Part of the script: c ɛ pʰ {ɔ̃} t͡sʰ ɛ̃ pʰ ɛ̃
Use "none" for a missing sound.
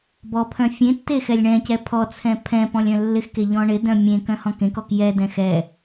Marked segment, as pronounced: ɔ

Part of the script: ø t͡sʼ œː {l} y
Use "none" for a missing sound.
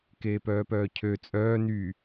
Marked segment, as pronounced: n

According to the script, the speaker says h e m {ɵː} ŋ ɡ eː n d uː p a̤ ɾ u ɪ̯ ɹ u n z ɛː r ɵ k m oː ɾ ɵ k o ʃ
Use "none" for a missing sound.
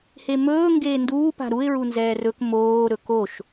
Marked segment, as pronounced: ɵː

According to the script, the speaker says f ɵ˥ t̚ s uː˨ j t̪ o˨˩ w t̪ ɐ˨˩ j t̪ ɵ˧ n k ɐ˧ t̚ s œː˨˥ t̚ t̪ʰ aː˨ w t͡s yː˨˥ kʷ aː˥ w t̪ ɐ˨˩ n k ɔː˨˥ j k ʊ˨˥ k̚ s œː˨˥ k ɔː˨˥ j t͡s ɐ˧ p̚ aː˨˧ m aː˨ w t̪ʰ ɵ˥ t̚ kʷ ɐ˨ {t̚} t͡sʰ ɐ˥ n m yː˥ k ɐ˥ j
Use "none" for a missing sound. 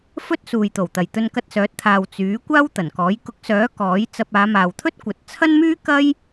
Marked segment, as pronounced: t̚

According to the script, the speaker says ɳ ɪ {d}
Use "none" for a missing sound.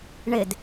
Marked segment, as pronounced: d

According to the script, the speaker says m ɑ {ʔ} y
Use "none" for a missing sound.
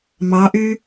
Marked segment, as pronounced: ʔ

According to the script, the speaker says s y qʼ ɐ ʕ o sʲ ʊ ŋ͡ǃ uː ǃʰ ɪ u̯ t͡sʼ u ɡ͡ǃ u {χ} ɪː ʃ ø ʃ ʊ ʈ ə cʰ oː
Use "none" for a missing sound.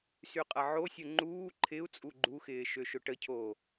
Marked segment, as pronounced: x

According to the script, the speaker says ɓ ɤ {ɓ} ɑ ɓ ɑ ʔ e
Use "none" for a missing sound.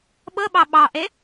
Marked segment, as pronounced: ɓ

